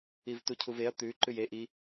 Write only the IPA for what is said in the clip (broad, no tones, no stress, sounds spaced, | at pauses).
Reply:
i v t u cʰ u v e ɐ̯ t̪ ʉ ǃ ʉ j e ʔ i